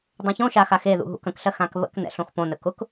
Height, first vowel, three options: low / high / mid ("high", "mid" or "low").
mid